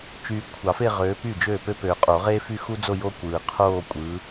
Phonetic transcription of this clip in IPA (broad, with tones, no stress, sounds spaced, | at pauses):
t͡ʃ yː˨ kʷʰ ɑ˨˩˦ f e˥˧ ʁ øː˨˦ p yː˥˩ d͡ʒ øː˥˩ p ø˥ p øː˨ qʼ o˨˩˦ ʁ eː˥ f y˥˧ x u˥ d͡z o˥˧ j o˥ kʷ ɯː˨ qʰ oː˥˧ kʷʼ ɯ˨˦